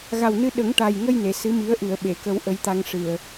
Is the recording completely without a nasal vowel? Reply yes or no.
yes